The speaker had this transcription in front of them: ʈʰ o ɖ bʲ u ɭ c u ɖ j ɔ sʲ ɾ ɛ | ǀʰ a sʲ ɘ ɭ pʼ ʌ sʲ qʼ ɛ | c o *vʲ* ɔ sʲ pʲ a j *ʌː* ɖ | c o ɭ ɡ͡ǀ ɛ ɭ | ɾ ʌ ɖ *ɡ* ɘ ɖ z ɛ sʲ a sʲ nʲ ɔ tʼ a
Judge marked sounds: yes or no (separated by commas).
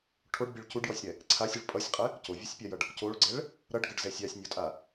yes, no, yes